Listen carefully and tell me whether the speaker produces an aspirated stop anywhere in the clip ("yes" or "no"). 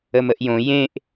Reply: no